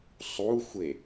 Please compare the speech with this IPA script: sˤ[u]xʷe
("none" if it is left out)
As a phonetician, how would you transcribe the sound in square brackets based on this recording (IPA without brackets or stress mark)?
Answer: u